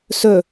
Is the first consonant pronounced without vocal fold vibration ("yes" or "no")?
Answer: yes